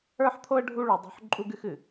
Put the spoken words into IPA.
ə˞˦ ħ t̪ʰ o˦ ə̯ ɖʱ u˦ ɭ y˨ dˤ o̤˦ ħ ǃʼ u˦ ɡ ɨ˦ x ɨ˨

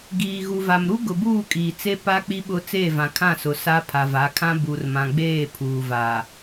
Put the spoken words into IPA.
ɡ iː˨ ɣ u˨ v a˨ m ɾ u˦ ɡ ʊ˨ b uː˦˨ kʼ iː˨ t͡s e˦ p a˦ k͡p i˦ ɓ ʊ˦ t͡s eː˦˨ v ã˨ kʰ ã˦˨ s ʊ˨ s a˦ pʰ a˨ v a˨˦ kʰ ã˦ b u˨ r m ã˨ ɡ͡b eː˦˨ pʰ uː˨ v aː˨

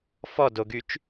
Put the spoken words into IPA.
f ɔ d o ɡ y t͡ʃ

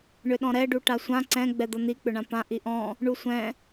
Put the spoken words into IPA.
ɳ ʏ ɗ ɔ̃ ɾ ɛ ɖ u ʈ a sʷ ã ǀ ɛ̃ ɡ͡b ɛ d̪ ʌ n̪ i k͡p ʏ ɳ ã p ã ʔ i ʔ ɔ̃ | ɳ u sʷ ɛ̃

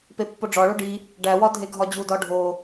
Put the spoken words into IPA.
p e pː o ɖ͡ʐ ɒ ɭ o ɖ i | ɖ æ w ɒ dʱ e ɡʱ ɒ d͡ʑ u d ɒ ɖʱ o

